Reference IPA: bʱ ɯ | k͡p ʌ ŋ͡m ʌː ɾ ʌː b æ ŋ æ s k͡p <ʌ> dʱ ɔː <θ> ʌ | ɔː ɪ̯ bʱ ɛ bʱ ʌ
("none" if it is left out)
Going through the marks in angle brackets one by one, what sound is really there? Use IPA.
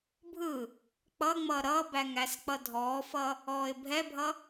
ʌ, f

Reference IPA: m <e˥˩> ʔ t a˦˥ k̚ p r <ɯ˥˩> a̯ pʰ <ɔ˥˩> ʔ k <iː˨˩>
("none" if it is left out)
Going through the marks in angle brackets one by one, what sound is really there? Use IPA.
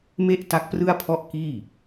e˥˩, ɯ˥˩, ɔ˥˩, iː˥˩

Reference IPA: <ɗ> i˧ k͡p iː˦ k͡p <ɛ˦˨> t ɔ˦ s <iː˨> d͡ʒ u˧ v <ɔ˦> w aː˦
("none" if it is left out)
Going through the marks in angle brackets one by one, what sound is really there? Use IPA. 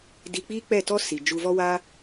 d, ɛ˦˨, i˨, ɔ˦

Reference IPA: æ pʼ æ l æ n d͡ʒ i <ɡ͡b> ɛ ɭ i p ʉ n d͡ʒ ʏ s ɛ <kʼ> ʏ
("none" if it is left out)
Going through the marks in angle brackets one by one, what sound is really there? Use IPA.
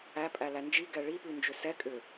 ɡ, kʼ

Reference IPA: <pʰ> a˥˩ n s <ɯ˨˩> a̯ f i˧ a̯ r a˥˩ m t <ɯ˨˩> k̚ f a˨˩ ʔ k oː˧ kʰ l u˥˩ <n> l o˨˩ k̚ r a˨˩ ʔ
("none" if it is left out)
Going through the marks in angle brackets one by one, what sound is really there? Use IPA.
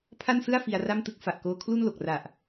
pʰ, ɯ˥˩, ɯ˥˩, n

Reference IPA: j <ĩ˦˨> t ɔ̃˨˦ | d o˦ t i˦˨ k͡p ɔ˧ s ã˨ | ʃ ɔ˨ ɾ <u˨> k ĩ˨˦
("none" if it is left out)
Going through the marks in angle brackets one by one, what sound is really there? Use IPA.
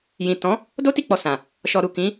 ĩ˨, u˨

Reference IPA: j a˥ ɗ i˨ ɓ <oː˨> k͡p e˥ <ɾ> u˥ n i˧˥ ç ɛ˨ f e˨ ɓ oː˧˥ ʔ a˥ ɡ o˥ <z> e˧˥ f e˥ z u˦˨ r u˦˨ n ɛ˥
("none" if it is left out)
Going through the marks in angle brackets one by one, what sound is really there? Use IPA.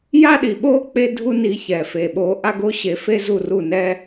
oː˥, dʱ, ɕ

